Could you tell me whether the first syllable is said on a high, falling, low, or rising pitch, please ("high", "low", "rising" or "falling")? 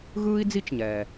high